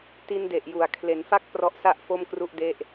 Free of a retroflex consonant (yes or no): yes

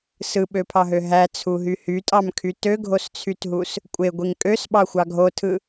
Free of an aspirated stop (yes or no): no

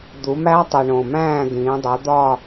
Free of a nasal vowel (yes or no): no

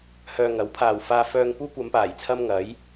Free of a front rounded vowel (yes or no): no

